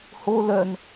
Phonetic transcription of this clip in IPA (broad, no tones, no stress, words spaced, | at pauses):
ho lœn